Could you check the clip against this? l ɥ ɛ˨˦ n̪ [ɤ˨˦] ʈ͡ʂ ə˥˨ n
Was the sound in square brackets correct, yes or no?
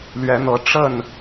yes